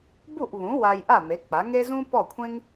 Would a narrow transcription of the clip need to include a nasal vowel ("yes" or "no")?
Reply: yes